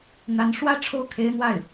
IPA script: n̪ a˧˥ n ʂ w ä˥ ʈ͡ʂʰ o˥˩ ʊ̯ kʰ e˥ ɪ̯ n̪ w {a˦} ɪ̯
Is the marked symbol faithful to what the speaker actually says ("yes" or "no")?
no